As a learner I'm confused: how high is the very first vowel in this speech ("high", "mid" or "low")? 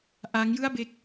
low